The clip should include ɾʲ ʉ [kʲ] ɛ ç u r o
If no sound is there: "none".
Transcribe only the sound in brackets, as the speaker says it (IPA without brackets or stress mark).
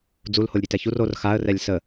t